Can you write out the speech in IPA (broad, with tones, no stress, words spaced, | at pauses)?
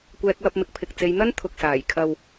kʷɛː˧k̚wɐ˧p̚mɪ˨k̚pʰɪ˨k̚ t͡se˨˧jn̪ɐ˥n t̪ʰʊ˨k̚saː˨˩j kʰɐ˨w